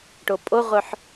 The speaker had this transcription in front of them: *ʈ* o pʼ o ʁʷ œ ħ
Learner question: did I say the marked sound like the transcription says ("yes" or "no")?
yes